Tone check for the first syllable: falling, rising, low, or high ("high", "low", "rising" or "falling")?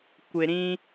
low